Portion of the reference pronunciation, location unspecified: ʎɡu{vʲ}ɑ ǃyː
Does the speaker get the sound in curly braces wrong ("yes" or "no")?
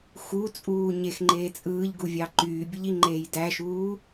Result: no